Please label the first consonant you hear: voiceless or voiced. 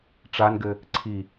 voiceless